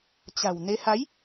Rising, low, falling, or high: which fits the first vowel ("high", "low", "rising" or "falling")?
low